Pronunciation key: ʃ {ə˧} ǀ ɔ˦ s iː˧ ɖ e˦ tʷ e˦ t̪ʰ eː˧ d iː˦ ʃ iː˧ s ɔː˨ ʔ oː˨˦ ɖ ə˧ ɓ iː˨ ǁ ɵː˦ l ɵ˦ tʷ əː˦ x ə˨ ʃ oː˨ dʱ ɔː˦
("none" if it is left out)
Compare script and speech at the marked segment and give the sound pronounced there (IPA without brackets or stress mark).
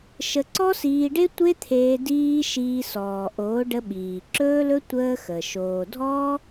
ə˧